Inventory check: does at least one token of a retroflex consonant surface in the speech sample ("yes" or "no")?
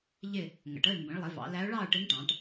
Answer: yes